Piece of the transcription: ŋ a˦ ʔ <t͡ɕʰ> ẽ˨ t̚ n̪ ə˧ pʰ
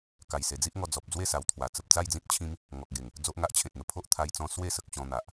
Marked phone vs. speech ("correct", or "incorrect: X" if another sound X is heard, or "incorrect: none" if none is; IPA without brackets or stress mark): correct